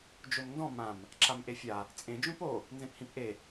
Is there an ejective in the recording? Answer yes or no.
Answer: yes